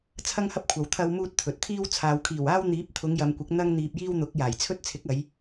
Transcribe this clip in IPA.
t͡sʰɐ˥ŋhɐ˥p̚kʷʰɐ˨w t̪ʰɐ˧wmuː˧t̚ t̪ʰɵ˨t̚t̪ʰiː˥w t͡sʰaː˨wkʰiː˨˩waː˥w n̪iː˨˥p̚t̪ʰʊ˨˧ŋjɐ˨m kʷɪ˨˥k̚ n̪ɐ˥ŋ n̪iː˧p̚jiː˥w n̪ʊ˨˥k̚jaː˨˩jt͡sʰɵ˥t̚ t͡sʰɪ˨˥k̚ɐ˨˧j

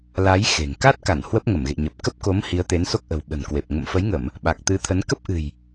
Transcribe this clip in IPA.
la˨˦j xe̤˨˩ŋ ka˦˥t̚ka˧˩n hwə˦˥p̚ŋə˧˩mɣḛ˧˨ɲə˨˩p̚ kə˦˥p̚ko˨˦m hi˨˦ə̯t̪e˨˦nso˦˥k̚ʔə̤˨˩w ɓə̤˨˩nkwe˨˩p̚ ŋə̰˧˨mfə˨˦jŋə˧˩˨m | ɓa˨˩k̚t̪ɨ˨˦t̪ʰə˨˦n kə˦˥p̚ʔɨ̤˨˩j

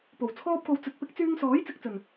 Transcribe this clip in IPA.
po˨˩wt͡sʰɔː˥p̚ko˧w t͡sɵ˨˥t̚pɪ˨˥k̚ t͡syː˧ŋsɔː˨˥j t͡sɪ˧k̚t͡sɵ˨˩n

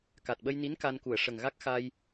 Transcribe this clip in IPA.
ka˨˩t̚ɓə˧jni˧˥n ka˧nku˨˩˨ə̯ ʂə˨˩ŋɣa˦˥k̚ xa˧j

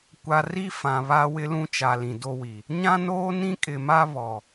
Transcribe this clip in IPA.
kʷa˨ ri˦ fã˨βa˦ wɪ˦lũ˦t͡ʃa˨ lĩ˨do˦wi˨ | ɲã˦noː˦nĩ˦ kʼɪ˨ma˦βɔ˨

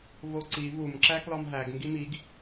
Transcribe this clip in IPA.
voǀi vum ǁæklɒmɦæɡ ŋɡimiɡ

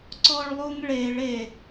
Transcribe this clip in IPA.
ǀɔɭlˠuŋɭeɭ e

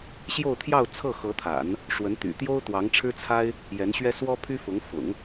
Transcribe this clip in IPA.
ɕjo˥˧ʊ̯t̪ʰjɑ˥˧ʊ̯ t͡sʰɤ˥˩xɤ˧˥t̪ʰa̰˨˩˦n | ʂwə˧˥nt̪y̰˨˩t̪jo˥ʊ̯ t̪wɑ˧˥ŋʈ͡ʂʰɻ̩˥t͡sʰa˥ɪ̯ | jɛ˧˥nɕɥɛ˥ swɔ˥pʰy˥ fʊ˧˥ŋ fʊ̰˨˩˦ŋ

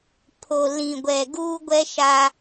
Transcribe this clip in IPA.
pʰo˨ lĩ˨ɡʷɛ˨ ɡuː˦ɡʷɛ˦ ʃa˦

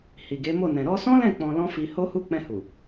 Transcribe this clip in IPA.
hi˨ɡe˨˦mo˦˨ nɛ̃˨ ɾɔ˧sɔ̃˦lɛ̃˦˨ k͡pɔ̃˧lɔ̃˦ fi˧ho˦hu˦ k͡pɛ̃˧hu˨

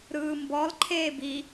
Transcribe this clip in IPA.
ɾɯːmbɔl ǃʰeːbi

